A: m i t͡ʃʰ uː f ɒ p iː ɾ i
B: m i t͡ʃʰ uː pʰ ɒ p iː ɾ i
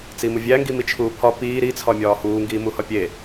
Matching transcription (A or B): B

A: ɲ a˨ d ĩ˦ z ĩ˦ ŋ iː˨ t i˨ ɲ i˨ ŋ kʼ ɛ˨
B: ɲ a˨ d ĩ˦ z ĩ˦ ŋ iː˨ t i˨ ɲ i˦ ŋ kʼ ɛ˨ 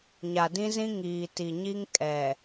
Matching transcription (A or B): B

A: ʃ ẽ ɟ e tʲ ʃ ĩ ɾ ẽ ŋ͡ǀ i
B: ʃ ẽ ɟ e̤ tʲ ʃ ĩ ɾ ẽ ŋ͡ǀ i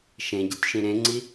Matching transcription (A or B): B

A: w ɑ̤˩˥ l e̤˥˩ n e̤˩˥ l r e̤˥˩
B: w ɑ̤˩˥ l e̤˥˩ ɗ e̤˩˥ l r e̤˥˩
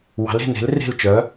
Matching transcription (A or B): A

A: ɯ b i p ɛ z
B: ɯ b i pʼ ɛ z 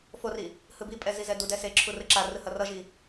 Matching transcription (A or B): B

